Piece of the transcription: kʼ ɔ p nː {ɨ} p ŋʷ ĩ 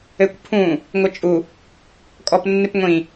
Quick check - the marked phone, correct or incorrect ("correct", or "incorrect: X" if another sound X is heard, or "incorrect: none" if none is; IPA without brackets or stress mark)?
correct